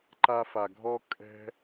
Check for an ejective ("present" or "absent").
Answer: present